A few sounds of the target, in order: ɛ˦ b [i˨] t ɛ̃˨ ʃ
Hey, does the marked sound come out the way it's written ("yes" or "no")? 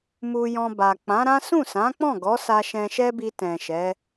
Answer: no